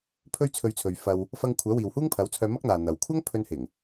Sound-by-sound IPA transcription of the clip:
pʰ ɵ˥ ɥ t͡sʰ ɵ˧ ɥ t͡sʰ ɵ˨ ɥ f ɐ˧ w | f ɐ˧ ŋ kʷʰ œː˨˥ w iː˨ w h uː˥ ŋ pʰ ɐ˨˥ w t͡sʰ œː˧ m ɐ˥ k̚ n̪ aː˨ n̪ ɐ˨ w kʷʰ ɐ˥ ŋ pʰ ɵ˧ n h ɪ˨˩ ŋ

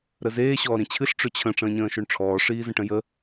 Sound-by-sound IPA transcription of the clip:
ɾ ə z eː ɕ ɔː ɾ ĩ t͡ɕʰ ɨ ɬ ʈ͡ʂ ʏ t͡ɕʰ ə̃ ʈ͡ʂ ə̃ː ɲ ə̃ː ʃ o ɳ ʈ͡ʂʰ ɔː ʂ iː z ə̃ ʈ ə̃ j ə

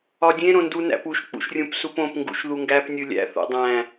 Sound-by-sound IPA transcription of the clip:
ɒ dʲ ẽ ɾ õ n d u n æ̰ p u ʃ k͡p ṵ ʃ rʲ ũ p s u p õ p ŋ ɡ ṵ ʃ ð u ŋ ɡ æ p nʲ u lʲ æ̰ θ o̰ dˤ æ̃

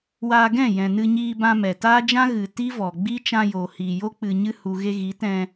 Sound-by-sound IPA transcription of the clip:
w a˧ ɡ ɛ̃˦˨ j ɛ̃˨ n ɨ˧ ɲ iː˧ b ã˧ m ɛ˨ t aː˦ d͡ʒ ã˦ ɣ ɨ˨ t i˦ v ɔ˨ ɡ͡b i˦ t͡ʃ ã˧ j oː˨ h iː˨ j o˦ k͡p ɨ˨ ɲ ɨ˧ h u˨ ɣ e˧ ɣ i˨˦ t ɛ̃˧

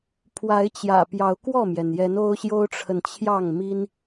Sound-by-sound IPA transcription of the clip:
pʰ w a˨˦ ɪ̯ t͡ɕ j ä̰˨˩ p j ɑ˨˦ ʊ̯ k w ɔ˥˨ m j ɛ˩ n j ɛ˨˦ n o˦ ʊ̯ ɕ j o˦ ʊ̯ ʈ͡ʂʰ ə˨ n t͡ɕʰ j ɑ˥˨ ŋ m i˦ n

